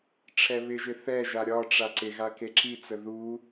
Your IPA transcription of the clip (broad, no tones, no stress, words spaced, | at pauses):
ʈ͡ʂʰɛβɪʒɪ θɛʒa ɾʲɒʈ͡ʂa ǀɪɣa keǁit͡sə ðu